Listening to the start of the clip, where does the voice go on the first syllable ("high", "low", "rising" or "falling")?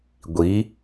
rising